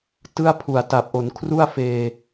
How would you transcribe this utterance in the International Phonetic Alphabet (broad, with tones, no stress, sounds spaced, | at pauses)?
t ɯ˥˩ a̯ pʰ u˨˩ a̯ t a˨˩ p̚ ʔ o˩˦ n kʰ r u˥˩ a̯ f eː˨˩